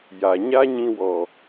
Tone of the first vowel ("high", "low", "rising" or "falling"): low